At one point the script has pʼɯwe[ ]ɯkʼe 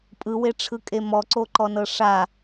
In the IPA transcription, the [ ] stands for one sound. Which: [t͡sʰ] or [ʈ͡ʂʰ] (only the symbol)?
ʈ͡ʂʰ